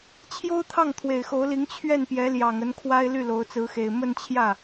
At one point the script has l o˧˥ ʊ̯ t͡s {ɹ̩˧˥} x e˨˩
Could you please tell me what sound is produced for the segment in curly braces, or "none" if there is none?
ɹ̩˧˥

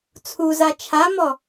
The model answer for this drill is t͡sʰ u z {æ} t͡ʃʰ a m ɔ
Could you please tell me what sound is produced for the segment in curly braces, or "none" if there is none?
a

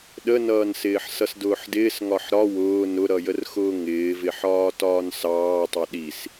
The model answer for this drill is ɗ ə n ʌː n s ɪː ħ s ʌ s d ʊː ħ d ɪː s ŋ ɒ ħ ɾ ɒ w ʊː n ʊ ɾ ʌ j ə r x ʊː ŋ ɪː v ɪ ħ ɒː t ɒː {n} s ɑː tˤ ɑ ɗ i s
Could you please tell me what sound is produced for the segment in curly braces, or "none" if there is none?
n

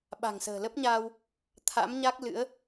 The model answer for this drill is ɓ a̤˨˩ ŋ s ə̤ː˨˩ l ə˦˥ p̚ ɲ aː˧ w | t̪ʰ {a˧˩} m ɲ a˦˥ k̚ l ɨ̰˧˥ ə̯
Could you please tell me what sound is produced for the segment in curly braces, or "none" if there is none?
a̰˧˥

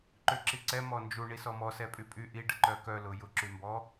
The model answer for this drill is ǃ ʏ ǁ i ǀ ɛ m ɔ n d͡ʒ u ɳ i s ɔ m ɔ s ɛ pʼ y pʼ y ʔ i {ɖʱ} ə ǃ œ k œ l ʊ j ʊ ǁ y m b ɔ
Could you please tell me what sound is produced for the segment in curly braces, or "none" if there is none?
ɖ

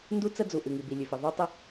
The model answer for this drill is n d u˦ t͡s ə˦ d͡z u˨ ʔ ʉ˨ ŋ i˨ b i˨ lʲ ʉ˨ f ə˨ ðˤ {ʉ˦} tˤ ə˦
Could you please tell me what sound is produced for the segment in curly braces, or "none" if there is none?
ʉ˦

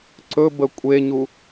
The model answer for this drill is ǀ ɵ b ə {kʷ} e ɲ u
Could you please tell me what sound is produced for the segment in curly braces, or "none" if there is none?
kʷʼ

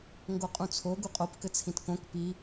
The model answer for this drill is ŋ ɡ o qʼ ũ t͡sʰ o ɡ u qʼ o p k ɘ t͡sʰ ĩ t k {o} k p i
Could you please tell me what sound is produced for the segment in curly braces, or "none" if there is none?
õ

